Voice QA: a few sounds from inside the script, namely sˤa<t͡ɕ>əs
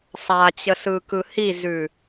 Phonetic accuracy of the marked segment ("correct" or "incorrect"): correct